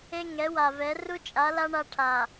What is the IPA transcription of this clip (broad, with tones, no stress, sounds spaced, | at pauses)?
e˦ ŋ ɛ˨˦ w a˨ v ɛ˨˦ r u˦ t͡ʃʼ a˨˦ l a˦ ɳ a˦ ʈʰ a˨